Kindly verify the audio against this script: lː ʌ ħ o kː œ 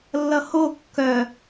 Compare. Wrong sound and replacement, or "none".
ħ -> h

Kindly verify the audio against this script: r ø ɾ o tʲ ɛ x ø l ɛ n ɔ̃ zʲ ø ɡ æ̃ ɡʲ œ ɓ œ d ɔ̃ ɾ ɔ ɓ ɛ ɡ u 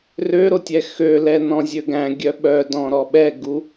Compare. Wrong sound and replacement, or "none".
none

